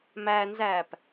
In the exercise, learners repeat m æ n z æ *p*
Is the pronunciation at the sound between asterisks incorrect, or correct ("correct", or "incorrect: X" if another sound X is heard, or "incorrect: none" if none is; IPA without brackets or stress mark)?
correct